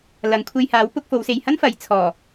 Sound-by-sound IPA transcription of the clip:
l ɐ˨˧ ŋ kʷʰ e˧ j h aː˨˥ w p ʊ˨˥ k̚ f o˨˧ w s e˨ j h ɐ˥ n f ɐ˨˧ j t͡sʰ ɔː˨˩

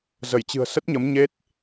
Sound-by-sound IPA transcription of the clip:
z ə˧˩ j t͡ɕ ɨ̤˨˩ ə̯ s ə˦˥ t̚ ɲ ə˨˦ m ɲ e˦˥ t̚

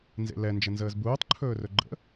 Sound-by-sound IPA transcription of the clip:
n z ḛ l ɛ n d͡ʒ ə n z əː z b uː tˤ ǃʰ ɵː r ɵ ɡ͡ǃ ə̰

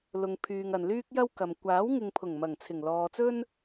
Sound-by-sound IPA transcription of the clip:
l ʊ˨ ŋ pʰ yː˨ ŋ ɐ˨ n l yː˥ k̚ j ɐ˥ w k ɐ˨ m kʷ aː˨˥ w ŋ ɪ˨ ŋ pʰ ʊ˨˩ ŋ m ɐ˨˩ ŋ t͡sʰ ɪ˨˩ ŋ l ɔː˨ t͡s ɵ˥ n

